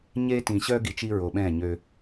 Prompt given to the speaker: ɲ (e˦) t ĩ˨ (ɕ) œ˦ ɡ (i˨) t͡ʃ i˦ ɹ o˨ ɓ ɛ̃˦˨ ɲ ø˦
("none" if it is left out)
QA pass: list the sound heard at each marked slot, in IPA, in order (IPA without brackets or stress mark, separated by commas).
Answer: e˦, ɕ, i˨